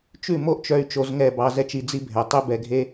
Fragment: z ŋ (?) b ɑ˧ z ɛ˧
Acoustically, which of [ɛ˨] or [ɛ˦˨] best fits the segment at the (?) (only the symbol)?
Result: ɛ˦˨